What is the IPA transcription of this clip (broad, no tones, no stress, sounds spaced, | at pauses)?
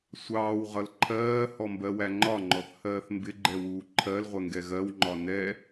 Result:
sʷ ɑː w ʁ ʌ l ǃʰ ɜː h ɔ m b ɜ w æ ŋ͡ǃ ɒ ŋ͡ǃ ɔ θ h ɜː θ m b ɪ ɡ͡ǃ ɛ w uː ǃʰ ɜ l ʁʷ ɛ ŋ ɡ ɛ ɣ ɜ w ŋ͡ǃ ɒ n ɛ